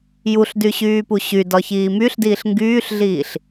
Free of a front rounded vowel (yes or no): no